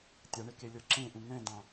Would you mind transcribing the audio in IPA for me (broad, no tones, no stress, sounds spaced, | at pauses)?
tʲ a ɳ e k e lʲ ɤ ǁ ẽ ʔ ũ ŋ ɛ̃ d ã